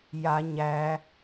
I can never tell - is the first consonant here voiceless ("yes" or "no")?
no